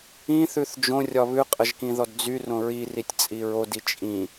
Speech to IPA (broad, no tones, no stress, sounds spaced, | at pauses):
ĩ θ ʉ θ d͡ʒ õ rʲ ɒ β ʉ qʼ ə ʒ k ĩ ð ɔ d d͡z y r õ ɹ i r i tʲ t͡sʼ i ɹ o d i t͡ʃʼ ĩ